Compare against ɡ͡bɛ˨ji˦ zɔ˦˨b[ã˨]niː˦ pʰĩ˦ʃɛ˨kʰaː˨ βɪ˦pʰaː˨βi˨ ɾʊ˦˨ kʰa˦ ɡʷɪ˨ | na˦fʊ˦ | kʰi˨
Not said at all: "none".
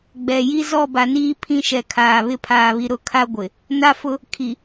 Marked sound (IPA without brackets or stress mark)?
a˨